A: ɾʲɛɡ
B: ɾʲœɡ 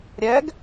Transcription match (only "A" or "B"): A